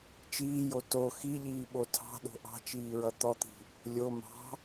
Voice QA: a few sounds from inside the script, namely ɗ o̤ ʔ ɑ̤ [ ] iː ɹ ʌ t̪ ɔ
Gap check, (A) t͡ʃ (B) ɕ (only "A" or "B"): A